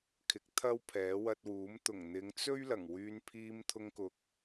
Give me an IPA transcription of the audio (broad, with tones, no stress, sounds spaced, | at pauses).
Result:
kʰ ɪ˨˥ k̚ t̪ʰ ɐ˥ w pʰ ɛː˨˥ w ɐ˧ t̚ w uː˨˥ m t̪ ʊ˨˩ ŋ n̪ ɪ˨˧ ŋ t͡s ɵ˥ ɥ l ɐ˨˩ ŋ w yː˧ n pʰ iː˧ m t̪ʰ ʊ˧ ŋ k ʊ˨ k̚